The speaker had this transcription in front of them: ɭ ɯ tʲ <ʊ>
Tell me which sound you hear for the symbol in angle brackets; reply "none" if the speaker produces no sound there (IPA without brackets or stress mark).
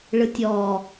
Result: ɔ